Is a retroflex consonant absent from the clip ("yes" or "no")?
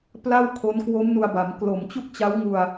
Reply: yes